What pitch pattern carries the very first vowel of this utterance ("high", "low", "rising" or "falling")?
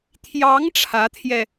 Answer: rising